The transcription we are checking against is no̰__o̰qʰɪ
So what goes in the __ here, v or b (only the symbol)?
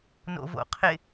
v